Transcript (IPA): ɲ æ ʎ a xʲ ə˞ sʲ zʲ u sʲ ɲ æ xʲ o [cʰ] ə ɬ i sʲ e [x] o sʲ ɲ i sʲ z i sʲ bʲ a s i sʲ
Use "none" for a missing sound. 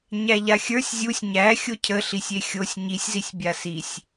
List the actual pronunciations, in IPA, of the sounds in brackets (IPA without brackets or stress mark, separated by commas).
cʰ, xʲ